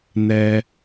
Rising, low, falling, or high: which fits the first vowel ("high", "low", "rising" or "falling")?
high